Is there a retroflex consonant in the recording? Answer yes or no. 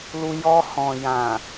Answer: no